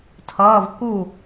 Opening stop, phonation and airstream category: aspirated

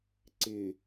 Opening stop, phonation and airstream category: click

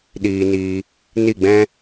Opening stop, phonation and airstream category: implosive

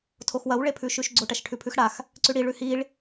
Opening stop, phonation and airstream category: aspirated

